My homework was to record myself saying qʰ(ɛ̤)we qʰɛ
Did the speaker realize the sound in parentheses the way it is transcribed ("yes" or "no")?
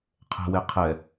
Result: yes